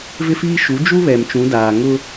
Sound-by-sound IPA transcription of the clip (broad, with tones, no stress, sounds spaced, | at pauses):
v ɪ˦ f iː˦ ʃ u˨˦ d͡ʒ u˦ β ɛ˨ m t͡ʃ ũ˨˦ d aː˨ ŋ ʊ˦